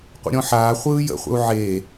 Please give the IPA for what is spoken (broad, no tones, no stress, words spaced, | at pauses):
qʷə̰ɾʲɔ̃ħaː χʷɯːjə̰χʷə̰u̯ ʕe